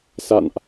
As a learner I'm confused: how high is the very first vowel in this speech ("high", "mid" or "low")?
low